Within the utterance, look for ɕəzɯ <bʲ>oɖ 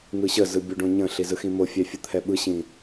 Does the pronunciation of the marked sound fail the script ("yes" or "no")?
no